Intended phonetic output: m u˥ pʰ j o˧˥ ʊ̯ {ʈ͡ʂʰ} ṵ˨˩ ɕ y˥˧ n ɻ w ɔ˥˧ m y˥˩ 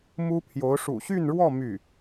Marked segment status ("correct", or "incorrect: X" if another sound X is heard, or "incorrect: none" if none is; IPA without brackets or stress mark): incorrect: ʂ